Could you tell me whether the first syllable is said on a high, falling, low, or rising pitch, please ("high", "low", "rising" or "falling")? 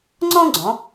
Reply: high